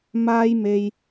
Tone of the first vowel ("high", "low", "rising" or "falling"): high